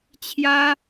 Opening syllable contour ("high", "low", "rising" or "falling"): high